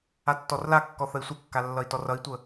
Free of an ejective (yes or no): yes